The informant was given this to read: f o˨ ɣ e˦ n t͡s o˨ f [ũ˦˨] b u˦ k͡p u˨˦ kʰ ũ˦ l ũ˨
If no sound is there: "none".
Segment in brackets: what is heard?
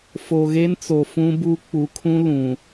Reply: ũ˦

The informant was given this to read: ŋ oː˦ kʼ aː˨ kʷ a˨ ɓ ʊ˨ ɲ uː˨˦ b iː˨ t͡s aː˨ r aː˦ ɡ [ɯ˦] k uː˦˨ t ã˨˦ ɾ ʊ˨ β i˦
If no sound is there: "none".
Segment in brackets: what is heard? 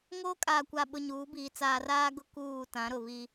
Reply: ʊ˦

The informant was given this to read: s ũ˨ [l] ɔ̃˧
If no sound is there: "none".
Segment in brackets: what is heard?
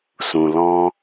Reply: l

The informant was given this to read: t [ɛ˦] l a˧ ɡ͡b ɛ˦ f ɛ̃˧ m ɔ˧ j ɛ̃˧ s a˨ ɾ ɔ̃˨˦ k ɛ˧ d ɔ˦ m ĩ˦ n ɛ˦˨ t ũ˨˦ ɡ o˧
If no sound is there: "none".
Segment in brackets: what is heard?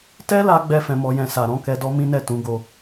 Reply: ɛ˦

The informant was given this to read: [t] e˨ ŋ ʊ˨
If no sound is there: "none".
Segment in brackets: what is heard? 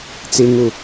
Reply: t͡s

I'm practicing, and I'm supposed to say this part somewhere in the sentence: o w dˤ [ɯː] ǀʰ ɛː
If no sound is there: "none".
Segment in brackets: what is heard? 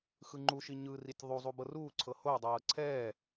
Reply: ɤː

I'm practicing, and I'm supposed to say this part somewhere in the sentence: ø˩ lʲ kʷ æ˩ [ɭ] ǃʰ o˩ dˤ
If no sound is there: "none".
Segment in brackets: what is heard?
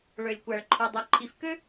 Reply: ɭ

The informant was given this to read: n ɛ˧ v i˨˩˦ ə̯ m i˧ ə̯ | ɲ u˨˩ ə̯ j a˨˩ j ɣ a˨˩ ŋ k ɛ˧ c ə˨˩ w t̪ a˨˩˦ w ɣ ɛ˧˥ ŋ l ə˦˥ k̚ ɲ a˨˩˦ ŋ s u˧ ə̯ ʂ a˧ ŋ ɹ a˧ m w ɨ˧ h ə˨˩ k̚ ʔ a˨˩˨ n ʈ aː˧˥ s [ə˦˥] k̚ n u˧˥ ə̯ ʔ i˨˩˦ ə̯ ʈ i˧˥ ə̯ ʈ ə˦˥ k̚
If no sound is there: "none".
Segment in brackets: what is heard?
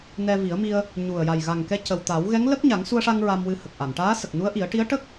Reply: ə˨˩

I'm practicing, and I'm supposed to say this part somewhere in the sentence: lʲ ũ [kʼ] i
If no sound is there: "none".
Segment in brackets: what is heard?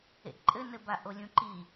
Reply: ǃ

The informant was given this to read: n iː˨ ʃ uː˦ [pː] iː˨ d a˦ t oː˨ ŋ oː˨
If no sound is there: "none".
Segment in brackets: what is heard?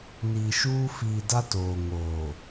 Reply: f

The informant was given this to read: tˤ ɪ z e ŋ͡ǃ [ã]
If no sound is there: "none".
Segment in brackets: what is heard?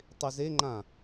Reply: ã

